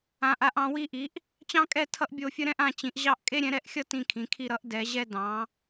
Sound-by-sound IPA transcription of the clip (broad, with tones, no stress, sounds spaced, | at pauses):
ã˨˥ ʔ a˨˥ ʔ ɑ̃˨˥ w i˥˧ ʔ i˨˥ ʔ | t͡ɕ ɑ̃˥ kʼ ɛ˥˧ tʰ ʌ˥ ʔ bʲ o˥˧ fʲ ə˥ ɾ ɛ̃˥ ʔ ã˥˧ t͡ɕ ĩ˨˥ ʔ ʑ ɑ˥˧ ʔ kʼ e˥ ɾʲ ɛ̃˨˥ ɾ ɛ˥˧ ʔ xʲ ʌ˥ t ĩ˥˧ kʰ ĩ˨˥ kʰ i˥˧ ɾ ʌ˥ ʔ d ɛ˨˥ ʑ ɛ˥ d ɑ̃˨˥